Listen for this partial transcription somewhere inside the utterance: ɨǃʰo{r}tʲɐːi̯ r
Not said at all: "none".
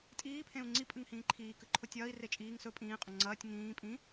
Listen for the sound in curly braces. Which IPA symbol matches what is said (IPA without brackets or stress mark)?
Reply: none